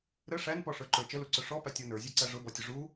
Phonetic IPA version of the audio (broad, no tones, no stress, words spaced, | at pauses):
ɾə ʂænpɔʂə˞ǃə˞ t͡ʃəluǀʊ ʂɔpætʲɔ nə˞zʲæǀæ ʐʊbɔtʲʊ ʐu